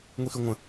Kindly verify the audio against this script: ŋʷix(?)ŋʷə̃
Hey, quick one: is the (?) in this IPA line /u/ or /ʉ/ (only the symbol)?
ʉ